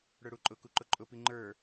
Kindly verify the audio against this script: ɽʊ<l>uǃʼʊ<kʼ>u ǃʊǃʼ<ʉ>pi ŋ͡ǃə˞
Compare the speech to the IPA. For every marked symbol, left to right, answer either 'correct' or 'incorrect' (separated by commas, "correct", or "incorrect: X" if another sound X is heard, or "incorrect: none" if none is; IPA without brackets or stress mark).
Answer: incorrect: ɽ, incorrect: k, incorrect: ʊ